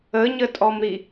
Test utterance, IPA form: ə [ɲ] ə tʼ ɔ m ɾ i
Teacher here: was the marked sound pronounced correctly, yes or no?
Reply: yes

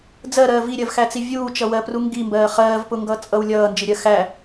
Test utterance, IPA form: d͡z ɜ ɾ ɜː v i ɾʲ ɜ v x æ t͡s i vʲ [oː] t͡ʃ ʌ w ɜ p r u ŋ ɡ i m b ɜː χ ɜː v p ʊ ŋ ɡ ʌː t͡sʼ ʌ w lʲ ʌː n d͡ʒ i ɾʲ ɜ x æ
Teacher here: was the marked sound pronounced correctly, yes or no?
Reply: no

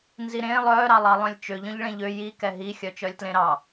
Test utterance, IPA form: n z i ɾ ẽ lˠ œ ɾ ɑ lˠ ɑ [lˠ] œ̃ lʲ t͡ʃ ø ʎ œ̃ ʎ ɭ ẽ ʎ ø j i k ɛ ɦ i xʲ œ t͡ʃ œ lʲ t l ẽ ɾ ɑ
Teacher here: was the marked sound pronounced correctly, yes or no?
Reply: yes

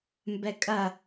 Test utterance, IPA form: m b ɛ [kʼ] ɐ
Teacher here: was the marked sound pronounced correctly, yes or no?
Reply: yes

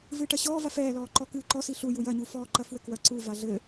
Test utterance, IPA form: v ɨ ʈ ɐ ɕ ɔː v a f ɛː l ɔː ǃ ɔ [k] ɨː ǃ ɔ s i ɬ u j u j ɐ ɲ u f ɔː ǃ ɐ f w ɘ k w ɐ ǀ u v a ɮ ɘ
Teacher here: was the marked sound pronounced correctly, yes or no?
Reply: yes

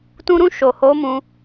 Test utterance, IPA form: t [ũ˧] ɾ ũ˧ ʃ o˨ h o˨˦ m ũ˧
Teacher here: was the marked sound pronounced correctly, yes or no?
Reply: yes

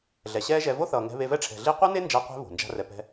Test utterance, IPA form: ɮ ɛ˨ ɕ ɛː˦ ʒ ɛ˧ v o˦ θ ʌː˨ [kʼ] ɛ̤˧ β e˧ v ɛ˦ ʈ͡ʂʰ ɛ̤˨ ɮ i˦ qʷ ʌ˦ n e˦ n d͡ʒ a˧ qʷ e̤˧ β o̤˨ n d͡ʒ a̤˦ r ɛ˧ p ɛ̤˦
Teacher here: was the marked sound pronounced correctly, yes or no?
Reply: no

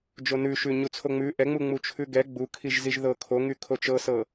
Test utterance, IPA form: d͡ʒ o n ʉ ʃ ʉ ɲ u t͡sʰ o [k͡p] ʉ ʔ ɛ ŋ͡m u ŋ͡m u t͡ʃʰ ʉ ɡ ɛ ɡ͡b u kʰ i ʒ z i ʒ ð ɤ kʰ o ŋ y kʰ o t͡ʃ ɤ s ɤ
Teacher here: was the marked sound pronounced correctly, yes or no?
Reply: no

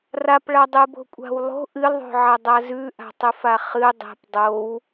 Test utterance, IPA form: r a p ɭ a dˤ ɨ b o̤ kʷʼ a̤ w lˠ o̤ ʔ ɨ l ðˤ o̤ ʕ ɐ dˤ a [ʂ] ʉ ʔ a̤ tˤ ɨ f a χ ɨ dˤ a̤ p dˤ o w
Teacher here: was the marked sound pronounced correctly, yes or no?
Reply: no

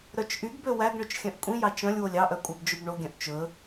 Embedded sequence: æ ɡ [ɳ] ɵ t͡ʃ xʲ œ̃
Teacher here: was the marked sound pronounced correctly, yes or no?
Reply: yes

